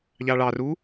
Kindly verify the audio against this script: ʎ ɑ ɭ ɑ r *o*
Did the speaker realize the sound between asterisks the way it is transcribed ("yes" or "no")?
no